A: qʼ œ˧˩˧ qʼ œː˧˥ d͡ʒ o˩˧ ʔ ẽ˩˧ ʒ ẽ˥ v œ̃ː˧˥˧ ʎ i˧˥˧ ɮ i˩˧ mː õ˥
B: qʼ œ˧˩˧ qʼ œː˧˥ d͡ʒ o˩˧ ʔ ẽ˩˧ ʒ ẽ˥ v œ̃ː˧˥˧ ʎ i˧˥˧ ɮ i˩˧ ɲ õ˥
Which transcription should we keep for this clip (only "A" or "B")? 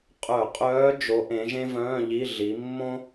A